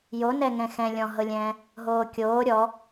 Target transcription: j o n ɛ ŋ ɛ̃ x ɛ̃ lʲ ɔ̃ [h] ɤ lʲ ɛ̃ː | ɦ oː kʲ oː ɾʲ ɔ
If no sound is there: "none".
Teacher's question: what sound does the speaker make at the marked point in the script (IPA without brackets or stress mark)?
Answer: ɦ